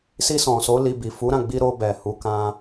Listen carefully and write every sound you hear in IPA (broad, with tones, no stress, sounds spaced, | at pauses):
s i˧ s ɔ̃˨ s o˨˦ l i˧ b i˨ f u˨˦ ɾ ã˦˨ ɡ͡b i˧ ɾ o˧ b ɛ˨ h u˨˦ k ã˧